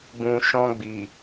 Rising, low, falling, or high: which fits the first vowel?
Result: low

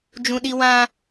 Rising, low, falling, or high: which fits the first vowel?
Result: high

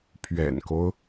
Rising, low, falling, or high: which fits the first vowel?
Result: low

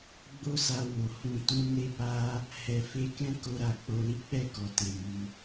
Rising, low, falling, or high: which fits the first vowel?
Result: high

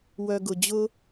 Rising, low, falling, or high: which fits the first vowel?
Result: low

